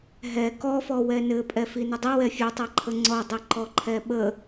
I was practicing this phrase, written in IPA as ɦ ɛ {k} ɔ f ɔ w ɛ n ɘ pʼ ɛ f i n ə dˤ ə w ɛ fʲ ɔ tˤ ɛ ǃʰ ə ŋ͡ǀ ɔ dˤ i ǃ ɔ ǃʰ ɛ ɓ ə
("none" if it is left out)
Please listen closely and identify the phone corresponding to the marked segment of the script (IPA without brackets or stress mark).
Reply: k